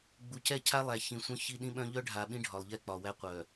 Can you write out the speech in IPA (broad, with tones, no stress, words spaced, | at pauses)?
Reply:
ɡ͡bu˨cɛ˦˨cʰa˦lˠæ˨ çĩ˨sʷœ̃˦ çi˦ ɗĩ˦ɓœ̃˦ ʎœ˦ɖʱa˨ ɓĩ˦ɖʱɒ˨lˠʎɛ˦˨k͡pɒ˨ wæ˦qʷœ˨